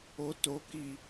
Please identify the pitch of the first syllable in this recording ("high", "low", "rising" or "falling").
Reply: rising